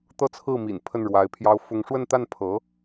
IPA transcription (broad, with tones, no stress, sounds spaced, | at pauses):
t̪ ɤ˥˧ t͡sʰ ɹ̩˥˩ m ḭ˨˩ n pʰ ə˥˩ n ɻ w a˧˥ ɪ̯ pʰ j ɑ˥ ʊ̯ f ʊ˥ ŋ ʂ w ə˥˧ n t̪ a˥˩ n pʰ ɤ˧˥